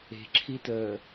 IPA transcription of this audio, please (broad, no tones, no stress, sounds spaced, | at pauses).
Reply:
e̤ ǁʰ i t əː